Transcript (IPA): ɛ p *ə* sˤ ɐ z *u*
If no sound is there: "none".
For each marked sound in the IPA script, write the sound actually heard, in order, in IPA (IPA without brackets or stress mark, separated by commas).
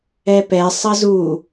ɛ, u